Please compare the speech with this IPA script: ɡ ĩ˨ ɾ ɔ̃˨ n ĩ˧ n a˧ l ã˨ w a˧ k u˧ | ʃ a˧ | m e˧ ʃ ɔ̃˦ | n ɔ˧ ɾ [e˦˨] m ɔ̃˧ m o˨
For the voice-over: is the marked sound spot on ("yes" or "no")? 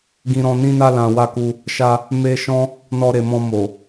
no